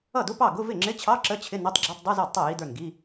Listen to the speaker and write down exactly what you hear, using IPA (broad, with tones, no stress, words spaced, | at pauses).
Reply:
ʌ˥˩dʊ˧˥˧ pɑ˥˩ɡʊ˧˥˧ vɪ˥˩ŋ͡ǁɪ˧˥˧t͡ɕʰɑ˧˥˧ ǁə˧˥˧t͡ɕʰɪ˧˥˧ nʌ˧˥˧tˤɡ͡ǁi˧˥˧tˤ dˤu˧˥˧zɑ˥˩dtˤʌ˥˩ ji˧˥˧də˞˥˩nɡi˧˥˧